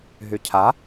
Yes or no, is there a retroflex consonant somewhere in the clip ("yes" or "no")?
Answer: no